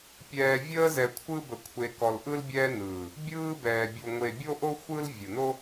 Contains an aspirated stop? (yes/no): yes